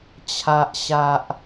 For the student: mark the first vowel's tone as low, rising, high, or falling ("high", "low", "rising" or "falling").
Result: high